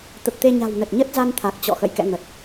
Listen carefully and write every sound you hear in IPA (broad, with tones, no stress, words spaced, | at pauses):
t̪ə˨˩p̚t̪e˧ ɲa̤˨˩w nə˨˩t̚ɲə˦˥t̚ za˧n t̪ʰa˨˩k̚t͡ɕɔ̰˧˨xə̰˧˨j kɛ̰˧˨ ŋə˨˩t̚